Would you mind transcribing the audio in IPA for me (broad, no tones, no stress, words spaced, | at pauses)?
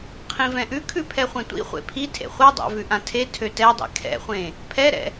qʰĩvɛ̃ʔʉkʰʉ pʰɛχʷẽtʷḭχʷḛ pʰi tʰḛχʷadˤa̰vʉ ʔãtʰe tʰøtɛdˤḭ kʰɛ̰χʷẽ | pʰɛɾɛ̰